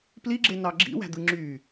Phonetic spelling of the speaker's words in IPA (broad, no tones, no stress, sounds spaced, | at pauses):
p l i ɡ͡ǁ e n ɑ ɡ͡ǁ ḭ w æ̤ d̪ ɯ ŋ͡ǁ y